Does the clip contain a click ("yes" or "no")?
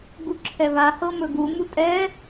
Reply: yes